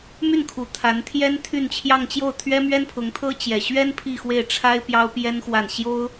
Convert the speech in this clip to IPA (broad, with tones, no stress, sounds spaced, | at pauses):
m y˥˩ n kʰ u˨˩ t̪ʰ a˧˥ n t̪ʰ j ɛ˥ n t̪ʰ y˥˧ n t͡ɕʰ j ɑ˥˧ ŋ t͡ɕ j o˥˩ ʊ̯ t̪ʰ ɥ ɛ˥ m ɥ ɛ˥ n pʰ ʊ˧˥ ŋ t̪ʰ ɤ˥ t͡ɕ j ɛ˨˩ ɕ ɥ ɛ˥ n pʰ i˥˧ x w e˥˩ ɪ̯ ʈ͡ʂʰ a˥ ɪ̯ p j ɑ˥ ʊ̯ p j ɛ˥ n x w a˥˩ n ɕ j o˥ ʊ̯